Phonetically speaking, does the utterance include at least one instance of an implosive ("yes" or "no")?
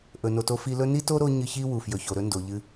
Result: no